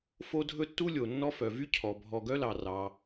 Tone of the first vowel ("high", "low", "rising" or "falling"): high